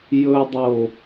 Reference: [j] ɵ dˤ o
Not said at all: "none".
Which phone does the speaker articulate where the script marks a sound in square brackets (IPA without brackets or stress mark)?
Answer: j